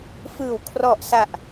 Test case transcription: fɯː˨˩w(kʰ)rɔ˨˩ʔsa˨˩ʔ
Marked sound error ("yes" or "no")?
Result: no